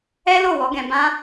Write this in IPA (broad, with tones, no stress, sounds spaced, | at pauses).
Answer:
ɛ˦ l o˦˨ w ɔ˨˦ ɡ ɛ̃˧ b ã˦